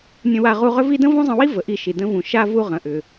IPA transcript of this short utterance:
nʲ ə̃˧ w a˧ ʁ u˧ ʁ ʏ˥ v i˥ d ə̃˥ v ũ˥ zˤ ə̃˧ w i˥ v ə˩ ʔ i˧ ʃ i˩ d ə̃˧ v ũ˩ ʃ a˥ v u˧ ʁ ə̃˩ ʔ ʏ˩

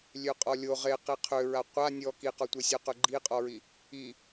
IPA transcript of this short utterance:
lʲ ø qʼ ɔ lʲ o ʁ e q i qʰ ø ɹ a qʷ a nʲ ɔ k i q ɔ tʷ e sʲ o q ø ɡ͡ǃ i qʼ ɔ ɹ i | i

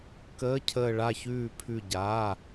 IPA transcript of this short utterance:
k əː˧˥˧ cʰ əː˦˨ ɭ a˦˨ ç ʉː˦˨ pʰ ʉ˦˨ ɟ aː˧˥˧

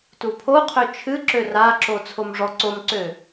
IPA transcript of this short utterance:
t u pʰ o qʰ ø t͡ʃʰ ɨ ǁ ø r a ǁ o t͡sʰ o m ʐ ɔ ǀ o m ǀ ø

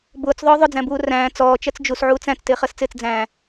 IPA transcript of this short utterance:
b ʊː t͡s ðˤ ʊː ðˤ ʊ d͡z æ̃ b uː r æ̃ː t͡s ɔː t͡ʃ ɜ t͡s d͡ʒ u s ʕ uː t͡s æ̃ t͡s t ɪː χ ɜ s t͡s ɪː t͡s d͡z æ̃ː

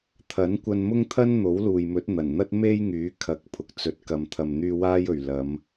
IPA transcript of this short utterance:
t̪ʰ ɐ˨˥ n kʷ ɐ˧ n m ʊ˥ ŋ t̪ʰ ɐ˥ n n̪ o˨˥ w l uː˨ j m ɵ˨˥ t̚ n̪ ɐ˨˩ n n̪ ɐ˥ t̚ m e˥ j ŋ yː˨˥ kʰ ɐ˨ k̚ pʰ ʊ˨ k̚ t͡s ɵ˨ t̚ k ɐ˨ m t̪ʰ ɐ˨ m n̪ yː˧ w aː˥ j ɵ˨ ɥ l ɐ˨˧ m

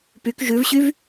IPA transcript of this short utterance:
p y k ʒ ʉ v ɕ y v

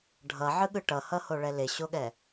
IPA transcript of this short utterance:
ɖʱ ʌ ʕ ɯ ɠ ɯ ʈ ʌ h ʌ h o ɭ ɛ l e ɕ o ɠ ɛ

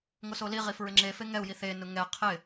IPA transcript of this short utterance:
ŋ o s o l i ʁ i f ɹ ɪ ŋ͡ǁ e f e ŋ ɛ u̯ j i θ e n ʊ ŋ ɛ qʰ ɪ

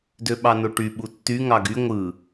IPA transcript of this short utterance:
d ø ɓ ɑ n o ʈ y ɓ u tː y ŋ ɑ ɡ y ŋʷ ɯ

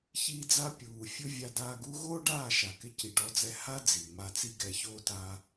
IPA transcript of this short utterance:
ç iː˧ d͡z a˧ pʲ uː˨ fʲ ʊ˧ vʲ a˧ d aː˧ ɡ u˧ ɣ oː˦ ɖ aː˦˨ ʃ a˨ k ɪ˧ c i˨ ɖ ɔ˨ d͡z ɛ˨ h a˦ d͡z i˨ m a˧ t͡s i˦ ɡ ɛ˧ ç oː˦ t a˧

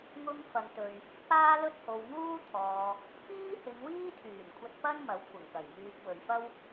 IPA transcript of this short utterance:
ŋ ʊ˧ ŋ f ɐ˧ ŋ t̪ ɵ˧ ɥ | p aː˥ l ɵ˥ t̚ h o˨ w ŋ uː˥ t̪ʰ ɔː˨ | p iː˥ h ɪ˨˧ ŋ w iː˥ t̪ʰ yː˨˩ n kʷʰ ɐ˧ t̚ p ɐ˥ n m ɐ˨˥ w kʷʰ ɐ˨˩ ŋ k ɐ˨˩ j m yː˨ p̚ w ɵ˨ ɥ f ɐ˥ w

